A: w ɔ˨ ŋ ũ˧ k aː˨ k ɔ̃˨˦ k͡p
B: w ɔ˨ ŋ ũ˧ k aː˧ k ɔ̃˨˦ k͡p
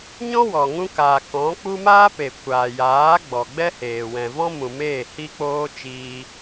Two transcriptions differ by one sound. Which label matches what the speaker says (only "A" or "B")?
A